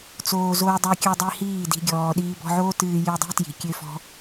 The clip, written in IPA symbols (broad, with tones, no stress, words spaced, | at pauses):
t͡soː˧ zoː˧dˤø˧kʲə˞˧ dˤi˧ hiː˦˨di̤˧ɡʲɔː˨ ɗiː˧bɔ̤˧ʕoː˦tɨː˧ jɨ˧dˤi̤˦ tji̤˨kʲø˦fɔ̤˦